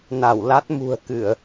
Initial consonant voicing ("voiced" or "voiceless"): voiced